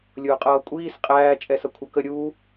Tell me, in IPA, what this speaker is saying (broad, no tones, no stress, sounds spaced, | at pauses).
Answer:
lʲ ʊː qʼ ʌː kʷʼ iː s qʼ æː t͡ʃʼ ɛ s ʌ kʷʰ ʌ k ə ɾʲ uː